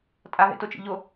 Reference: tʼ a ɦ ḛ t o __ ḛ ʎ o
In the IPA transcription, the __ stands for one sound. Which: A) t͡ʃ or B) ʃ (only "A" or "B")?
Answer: A